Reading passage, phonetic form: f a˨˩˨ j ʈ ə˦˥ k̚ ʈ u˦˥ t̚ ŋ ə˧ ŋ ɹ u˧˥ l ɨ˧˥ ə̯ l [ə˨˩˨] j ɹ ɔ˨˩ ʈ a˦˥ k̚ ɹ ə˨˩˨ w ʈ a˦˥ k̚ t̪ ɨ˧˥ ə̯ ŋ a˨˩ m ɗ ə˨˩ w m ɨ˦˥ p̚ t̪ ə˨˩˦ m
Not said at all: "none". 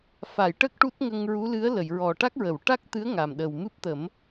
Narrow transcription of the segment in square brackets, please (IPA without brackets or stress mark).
ə˨˩˨